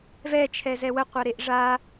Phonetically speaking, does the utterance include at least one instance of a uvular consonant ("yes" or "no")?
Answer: yes